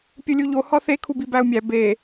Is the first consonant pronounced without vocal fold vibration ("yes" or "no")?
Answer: yes